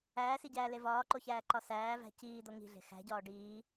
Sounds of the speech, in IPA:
æː s i ɟ æː l e v ɒː ǃ o ç æː ǃ ɒ s æː v æ̤ c iː d̪ o ŋ i̤ ɮ e̤ x æ̤ ɟ ɒː ɖ iː

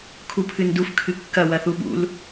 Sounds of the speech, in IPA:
kʰ u pʰ ɨ n d u f kʰ ɨ kː ɐ w ɐ θ u ɓ ṵ l

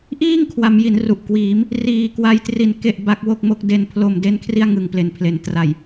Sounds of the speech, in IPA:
ʔ iː˥˩ ŋ kʰ w a˩˦ m j i˩˦ n r u˨˩ ʔ k w iː˩˦ m | r iː˨˩ k w a˧ j t r i˨˩ n k e˥˩ ʔ b a˦˥ k̚ w o˥˩ k̚ m o˦˥ k̚ d e˨˩ n pʰ l o˨˩ m d e˥˩ n kʰ r i˥˩ a̯ ŋ ɯ˩˦ ŋ p l e˩˦ n pʰ l e˩˦ n t r a˨˩ j

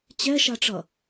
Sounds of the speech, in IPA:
t͡ɕ ɛ ʃ a ʈ͡ʂ ʌ

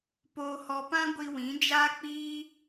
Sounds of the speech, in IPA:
p oː˧ h ɔ˧ p ã˦ ɡʷ i˧ w ĩ˨˦ d͡ʒ aː˦ k͡p iː˦

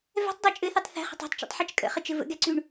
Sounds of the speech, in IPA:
v ɛ̤ tˤ dˤ o t͡ʃʼ ɘ θ ʉ tˤ θ ɛ̤ χ ə̤ tˤ ɛ̤ tˤ t͡ʃ o̰ tˤ ħ ɛ t͡ʃ kʼ ə̰ χ ɘ t͡ʃ ɘ v ə̰ ɡ ɛ ǀ ʉ ɳ

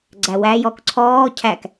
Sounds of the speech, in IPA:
ɡ͡ǀ æ w æ j ɔ k ǀʰ ɔː cʰ æ k

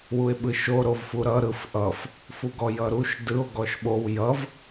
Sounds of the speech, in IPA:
w u e̯ ɓ ɯ ʃ o ɾ o v f u ɾ ʌ ɾ ɯ f ʔ ʌ f | f u ɡ ɔ j ʌ ɾ u ʃ d ɯ o̯ ɡ ɔ ʃ ɓ o w j ʌ v

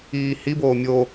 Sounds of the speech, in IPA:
iː h i b oː mʲ o

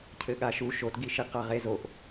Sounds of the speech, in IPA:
cʰ ɘ ɠ a ʃ u ʃ o t ɡ i ʃ i q a ʁ e z o ʔ

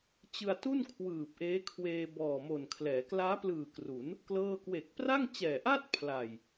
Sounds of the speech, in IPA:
t͡ɕ ɯ˧ a̯ t u˥˩ n kʰ w ɯː˨˩ p̚ ʔ eː˦˥ kʰ w eː˧ b ɔː˨˩ m o˨˩ n kʰ l ɛː˩˦ k l aː˦˥ p l ɯː˨˩ k r u˩˦ n | k l ɤː˥˩ k w e˨˩ k̚ p r a˥˩ ŋ t͡ɕ ɛː˨˩ ʔ a˥˩ t̚ pʰ l a˨˩ j

